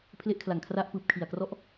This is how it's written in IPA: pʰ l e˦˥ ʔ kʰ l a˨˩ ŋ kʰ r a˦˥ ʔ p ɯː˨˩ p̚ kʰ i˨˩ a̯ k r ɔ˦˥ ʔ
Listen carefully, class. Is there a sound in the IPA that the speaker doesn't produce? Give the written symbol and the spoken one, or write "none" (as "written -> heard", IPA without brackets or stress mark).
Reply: none